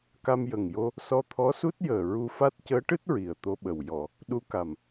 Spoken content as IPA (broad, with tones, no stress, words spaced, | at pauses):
ka˧mjə˨˩ŋjo˧ | sɔ˧t̪ʰɔ˧˥su˦˥t̚ jəː˨˩ɹu˧fa˦˥t̚ cəː˧˥ʈɨ˦˥t̚ ɹi˨˩ə̯t̪o˧ɓə˨˩w jɔ˨˩˨ | ɗu˧ka˨˩m